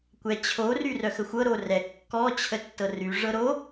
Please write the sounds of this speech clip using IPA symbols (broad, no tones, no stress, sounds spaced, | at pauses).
kʷ ɛ t͡ɕʰ o r y r œ x ə xʷ ɤ ɾ o r ɛ kː ɔ t͡ɕʰ ə tː ɤ r y ʐ ɤ ɾ o